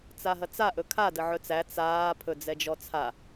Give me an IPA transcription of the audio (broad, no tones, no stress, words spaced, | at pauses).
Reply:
t͡saɦɐt͡sa ʔɵkʰa dəʕɵt͡sæ t͡saː pʰɵd͡zɛd͡ʒɔt͡sʰa